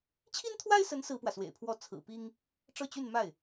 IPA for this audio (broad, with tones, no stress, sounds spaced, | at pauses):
t͡ɕʰ i˥ n t̪ʰ w a˥ ɪ̯ s ə˧˥ n s ɹ̩˥ p w ä˨ s w ḛ˨˩ ɪ̯ pʰ w ɔ˥ t͡sʰ ɹ̩˨˩ p i˥ ŋ | ʈ͡ʂ ɤ˥˧ t͡ɕ y˥˧ n m a˥˩ ɪ̯